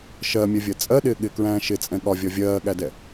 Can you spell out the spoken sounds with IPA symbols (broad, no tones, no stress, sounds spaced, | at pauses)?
ʃ ɜ mʲ ɛ vʲ ɜ t͡sʼ ɜ ɗ ɪː ɠ ɪ k ɹ æ̃ː ʃ ɪ t͡sʼ ɛ̃ ɠ ɒ vʲ ɒ vʲ ɜː ɠ æ d ɛ